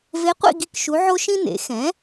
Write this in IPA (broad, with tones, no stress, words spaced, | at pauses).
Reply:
ve˧˥qʷḭ˥˧ ɡi˥˧kʃu˧˥ʕo˥ ʃĩ˥nḛ˩˥ xɛ̃˩˥